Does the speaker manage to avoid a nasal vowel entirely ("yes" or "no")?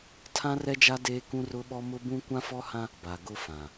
no